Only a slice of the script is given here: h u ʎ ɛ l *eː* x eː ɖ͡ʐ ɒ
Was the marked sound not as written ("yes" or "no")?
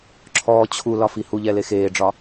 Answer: yes